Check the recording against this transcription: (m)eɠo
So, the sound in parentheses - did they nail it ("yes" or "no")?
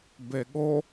no